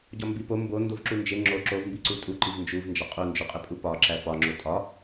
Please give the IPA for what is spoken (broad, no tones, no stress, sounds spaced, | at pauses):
ɟ ɒ m b i p o m b o n d o v ǁ u n d͡ʒ e ŋ͡ǁ o ǁ o v m b i ǀ u tʼ u ǃ i v n d͡ʒ u v n d͡ʒ ɒ qʼ u n d͡ʒ o qʼ e pʼ u p ɒ ǁ æ f ɒ ŋ͡ǁ o tʼ ɒ